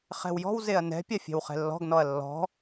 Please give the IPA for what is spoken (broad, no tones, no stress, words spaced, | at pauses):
χɛ̤wjɔ̤w zeɐ̯nɛ̤ pʲafʲɛ̤wχɛ̤lːɔ̤ɡ nɔɐ̯lːɔ̤